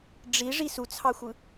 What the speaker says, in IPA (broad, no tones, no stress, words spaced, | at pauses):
ɖ͡ʐiʐi sut͡sʰɑxʷɯ